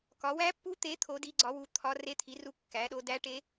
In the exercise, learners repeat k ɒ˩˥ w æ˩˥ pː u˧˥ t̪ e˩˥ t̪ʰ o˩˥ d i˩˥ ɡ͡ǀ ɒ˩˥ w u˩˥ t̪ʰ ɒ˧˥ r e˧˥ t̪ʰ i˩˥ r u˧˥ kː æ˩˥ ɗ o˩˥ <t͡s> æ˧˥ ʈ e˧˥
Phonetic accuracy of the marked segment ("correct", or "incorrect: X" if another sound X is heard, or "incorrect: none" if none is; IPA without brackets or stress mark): incorrect: d